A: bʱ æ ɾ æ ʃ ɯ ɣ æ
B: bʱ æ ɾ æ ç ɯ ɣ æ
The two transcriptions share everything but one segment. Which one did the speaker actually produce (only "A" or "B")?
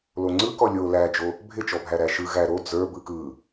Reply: A